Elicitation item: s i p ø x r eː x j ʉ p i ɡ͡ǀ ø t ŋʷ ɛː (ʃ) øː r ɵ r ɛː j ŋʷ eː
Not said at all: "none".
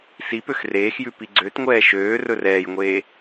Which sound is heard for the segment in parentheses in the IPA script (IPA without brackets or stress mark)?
ʃ